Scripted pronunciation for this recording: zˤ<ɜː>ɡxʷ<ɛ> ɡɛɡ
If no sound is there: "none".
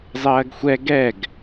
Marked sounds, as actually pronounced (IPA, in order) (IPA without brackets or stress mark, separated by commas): ɜː, ɛ